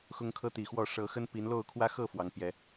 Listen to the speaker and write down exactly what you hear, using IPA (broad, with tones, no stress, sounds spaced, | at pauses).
x ʊ˦ ŋ kʰ ɤ˦ t̪ i˨˩ x w ɔ˥˨ ʂ ɤ˨˦ x ə˦ n p i˨˦ n l o˥˨ ʊ̯ kʰ w ä˦ x ɤ˥˨ f w ɑ˨˦ ŋ p j ɛ˨˦